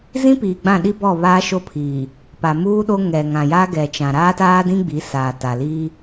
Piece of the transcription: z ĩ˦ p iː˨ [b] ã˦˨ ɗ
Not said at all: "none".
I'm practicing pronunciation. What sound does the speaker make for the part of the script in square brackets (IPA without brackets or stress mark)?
ɡ͡b